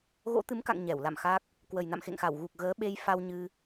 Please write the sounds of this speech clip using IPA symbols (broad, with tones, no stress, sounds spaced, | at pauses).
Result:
ɣ o̰˧˥ t̪ ɨ˨˦ m k a̰˧˨ ŋ ɲ ɛ˧˩ w l a̰˧˨ m x a˦˥ k̚ | k w ə˨˩ j n a̰˧˨ m x ḛ˧˨ ŋ x a˧˩ w ɣ u˨˩ k̚ ɣ əː˨˦ ɓ e˧ j f a˧ w ɲ ɨ˧